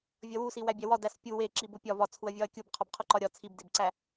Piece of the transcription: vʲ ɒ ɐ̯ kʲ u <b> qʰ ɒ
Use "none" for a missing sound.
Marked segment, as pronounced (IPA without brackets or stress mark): b